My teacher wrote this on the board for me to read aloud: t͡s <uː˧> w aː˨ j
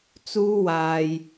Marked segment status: correct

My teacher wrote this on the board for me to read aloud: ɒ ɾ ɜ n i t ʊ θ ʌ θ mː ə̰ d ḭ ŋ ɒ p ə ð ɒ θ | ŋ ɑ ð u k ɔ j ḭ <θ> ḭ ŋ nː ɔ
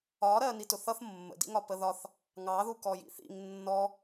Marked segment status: correct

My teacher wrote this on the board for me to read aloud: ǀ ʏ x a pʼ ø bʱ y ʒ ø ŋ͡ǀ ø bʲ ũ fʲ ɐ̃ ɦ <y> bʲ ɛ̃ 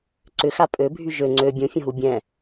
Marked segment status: incorrect: u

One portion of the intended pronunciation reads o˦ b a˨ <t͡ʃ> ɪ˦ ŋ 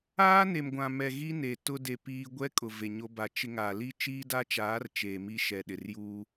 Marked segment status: correct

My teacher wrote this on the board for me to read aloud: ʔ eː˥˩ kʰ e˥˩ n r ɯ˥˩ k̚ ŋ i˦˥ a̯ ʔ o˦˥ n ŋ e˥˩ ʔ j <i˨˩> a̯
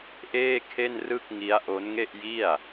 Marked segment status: incorrect: i˥˩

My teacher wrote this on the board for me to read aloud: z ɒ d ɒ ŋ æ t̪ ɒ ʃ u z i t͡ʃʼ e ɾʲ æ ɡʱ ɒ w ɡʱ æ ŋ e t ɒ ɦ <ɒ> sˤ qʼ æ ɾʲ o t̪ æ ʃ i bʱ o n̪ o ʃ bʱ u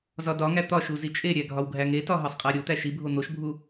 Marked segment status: correct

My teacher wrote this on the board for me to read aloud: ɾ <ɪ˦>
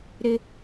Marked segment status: correct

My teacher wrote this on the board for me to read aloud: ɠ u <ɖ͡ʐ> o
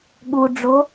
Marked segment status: correct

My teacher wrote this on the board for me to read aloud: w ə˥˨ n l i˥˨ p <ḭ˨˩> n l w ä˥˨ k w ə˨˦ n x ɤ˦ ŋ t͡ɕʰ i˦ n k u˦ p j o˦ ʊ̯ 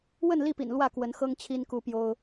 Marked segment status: correct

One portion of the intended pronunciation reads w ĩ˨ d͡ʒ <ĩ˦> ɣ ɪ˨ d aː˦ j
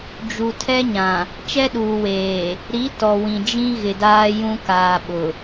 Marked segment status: correct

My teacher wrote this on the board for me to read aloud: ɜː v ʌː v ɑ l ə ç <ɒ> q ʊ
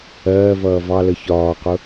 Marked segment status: incorrect: ɒː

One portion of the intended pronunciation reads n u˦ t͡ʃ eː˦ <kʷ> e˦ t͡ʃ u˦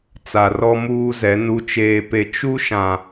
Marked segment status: incorrect: p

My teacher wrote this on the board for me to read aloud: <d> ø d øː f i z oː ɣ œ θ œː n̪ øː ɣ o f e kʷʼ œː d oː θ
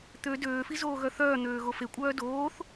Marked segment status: incorrect: t̪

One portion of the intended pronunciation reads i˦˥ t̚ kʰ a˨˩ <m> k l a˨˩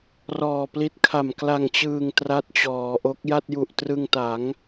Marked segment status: correct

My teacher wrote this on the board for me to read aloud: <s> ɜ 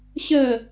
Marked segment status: incorrect: ɕ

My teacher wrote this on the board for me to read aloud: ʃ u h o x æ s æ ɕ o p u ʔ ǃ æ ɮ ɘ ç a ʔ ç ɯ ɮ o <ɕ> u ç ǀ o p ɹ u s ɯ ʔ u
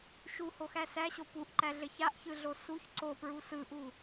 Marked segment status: incorrect: s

